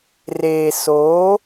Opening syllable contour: low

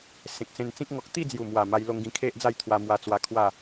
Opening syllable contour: low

